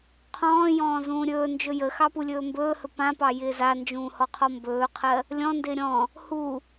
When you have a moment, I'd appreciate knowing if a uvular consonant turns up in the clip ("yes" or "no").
yes